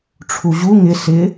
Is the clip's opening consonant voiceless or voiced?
voiceless